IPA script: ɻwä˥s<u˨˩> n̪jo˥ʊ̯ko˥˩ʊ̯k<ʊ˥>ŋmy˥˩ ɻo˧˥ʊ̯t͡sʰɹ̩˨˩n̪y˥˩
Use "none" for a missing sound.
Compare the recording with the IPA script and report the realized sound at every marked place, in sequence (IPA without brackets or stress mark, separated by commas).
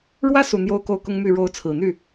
u˨˩, ʊ˥